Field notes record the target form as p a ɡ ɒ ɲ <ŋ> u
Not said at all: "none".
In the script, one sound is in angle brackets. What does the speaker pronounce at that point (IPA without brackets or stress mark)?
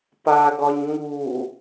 ŋ